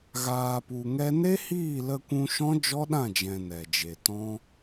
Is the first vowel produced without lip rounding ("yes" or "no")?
yes